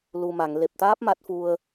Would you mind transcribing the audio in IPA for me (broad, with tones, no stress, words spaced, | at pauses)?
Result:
lu˨˩ma˨˩˨ŋ le˨˩p̚t̪aː˦˥p̚ ma˦˥t̚fu˧ə̯